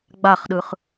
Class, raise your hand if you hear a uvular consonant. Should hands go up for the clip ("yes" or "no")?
yes